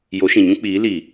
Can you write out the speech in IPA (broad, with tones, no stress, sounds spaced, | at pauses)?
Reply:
j o˨˦ ʃ ĩ˨ ɲ ũ˦ k͡p iː˨˦ l i˨